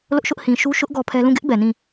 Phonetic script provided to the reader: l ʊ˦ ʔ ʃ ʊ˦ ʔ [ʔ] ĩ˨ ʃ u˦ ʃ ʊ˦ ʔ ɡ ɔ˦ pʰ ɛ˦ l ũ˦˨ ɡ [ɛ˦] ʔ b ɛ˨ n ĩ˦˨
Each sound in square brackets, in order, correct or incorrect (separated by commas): incorrect, incorrect